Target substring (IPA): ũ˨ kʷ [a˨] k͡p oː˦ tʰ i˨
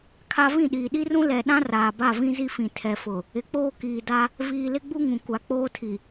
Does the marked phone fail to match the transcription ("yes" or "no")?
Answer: no